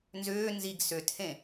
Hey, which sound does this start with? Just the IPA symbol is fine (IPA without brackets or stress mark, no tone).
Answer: n